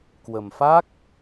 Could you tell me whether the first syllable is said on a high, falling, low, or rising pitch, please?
low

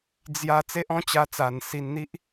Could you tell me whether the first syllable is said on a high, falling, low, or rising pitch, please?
falling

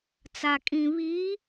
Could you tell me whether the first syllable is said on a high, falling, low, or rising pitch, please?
low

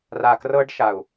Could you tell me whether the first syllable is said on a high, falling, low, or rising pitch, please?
low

